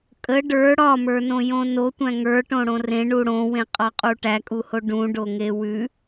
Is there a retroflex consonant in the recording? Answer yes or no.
yes